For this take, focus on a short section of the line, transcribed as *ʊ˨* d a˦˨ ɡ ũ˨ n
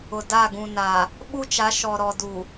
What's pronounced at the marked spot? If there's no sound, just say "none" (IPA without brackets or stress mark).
ʊ˨